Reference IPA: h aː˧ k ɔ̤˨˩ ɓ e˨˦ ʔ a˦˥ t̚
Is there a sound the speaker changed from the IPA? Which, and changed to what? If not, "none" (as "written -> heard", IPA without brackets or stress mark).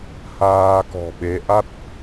none